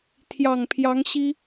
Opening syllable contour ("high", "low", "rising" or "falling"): low